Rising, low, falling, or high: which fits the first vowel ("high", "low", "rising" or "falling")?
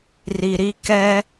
low